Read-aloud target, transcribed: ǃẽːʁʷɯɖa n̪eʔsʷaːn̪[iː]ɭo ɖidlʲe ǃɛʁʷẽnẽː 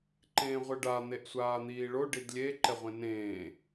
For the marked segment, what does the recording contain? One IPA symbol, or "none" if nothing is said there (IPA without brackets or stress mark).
iː